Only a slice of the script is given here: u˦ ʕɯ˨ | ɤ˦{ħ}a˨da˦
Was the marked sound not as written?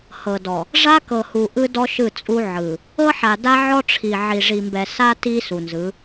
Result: no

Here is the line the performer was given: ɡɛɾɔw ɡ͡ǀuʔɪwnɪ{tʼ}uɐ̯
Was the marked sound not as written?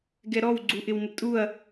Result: no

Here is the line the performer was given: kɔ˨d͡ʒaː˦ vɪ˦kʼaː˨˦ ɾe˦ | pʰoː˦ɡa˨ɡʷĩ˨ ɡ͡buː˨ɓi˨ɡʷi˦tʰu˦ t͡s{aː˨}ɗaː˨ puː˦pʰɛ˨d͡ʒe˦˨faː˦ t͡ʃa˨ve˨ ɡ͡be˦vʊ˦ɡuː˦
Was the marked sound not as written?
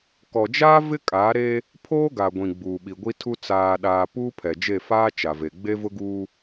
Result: no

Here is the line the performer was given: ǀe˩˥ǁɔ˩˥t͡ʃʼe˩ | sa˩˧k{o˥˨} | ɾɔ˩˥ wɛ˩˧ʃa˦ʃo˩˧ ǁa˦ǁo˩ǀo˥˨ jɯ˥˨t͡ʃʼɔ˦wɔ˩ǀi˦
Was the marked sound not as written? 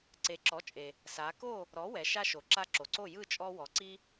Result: no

